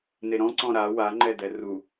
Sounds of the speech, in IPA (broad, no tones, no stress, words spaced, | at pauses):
neɾɔ̃ ǀɔ̃ɾa waŋ͡ǃɛdɛ ru